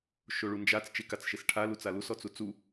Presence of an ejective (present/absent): absent